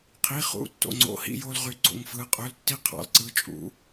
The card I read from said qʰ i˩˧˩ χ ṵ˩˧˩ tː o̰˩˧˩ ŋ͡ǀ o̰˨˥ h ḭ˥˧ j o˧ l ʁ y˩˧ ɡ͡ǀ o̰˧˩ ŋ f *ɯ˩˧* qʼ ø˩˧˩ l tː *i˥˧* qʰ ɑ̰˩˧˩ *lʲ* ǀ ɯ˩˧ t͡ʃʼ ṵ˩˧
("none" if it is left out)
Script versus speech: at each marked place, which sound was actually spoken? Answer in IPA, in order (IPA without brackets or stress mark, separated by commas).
ɯ˩˧, i˥˧, l